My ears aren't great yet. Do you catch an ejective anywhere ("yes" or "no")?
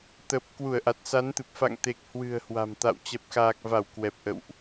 no